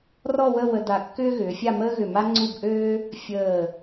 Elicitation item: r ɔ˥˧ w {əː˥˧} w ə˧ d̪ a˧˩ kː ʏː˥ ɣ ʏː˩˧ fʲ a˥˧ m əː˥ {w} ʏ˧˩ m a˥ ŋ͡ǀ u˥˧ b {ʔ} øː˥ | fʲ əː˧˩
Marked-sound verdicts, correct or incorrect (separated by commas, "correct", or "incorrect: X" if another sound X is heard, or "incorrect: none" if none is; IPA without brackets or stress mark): incorrect: ə˥˧, incorrect: ɣ, correct